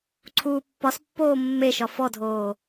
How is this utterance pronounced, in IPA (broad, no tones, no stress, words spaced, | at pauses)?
ǀʰuːpːɒspːoː mːeʃɒ fɔdʱoː